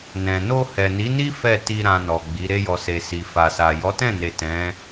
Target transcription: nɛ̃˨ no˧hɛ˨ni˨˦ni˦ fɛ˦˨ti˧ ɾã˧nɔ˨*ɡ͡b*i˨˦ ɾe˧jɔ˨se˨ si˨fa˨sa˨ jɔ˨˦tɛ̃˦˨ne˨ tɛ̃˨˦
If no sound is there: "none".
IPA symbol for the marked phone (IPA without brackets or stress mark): ɡ͡b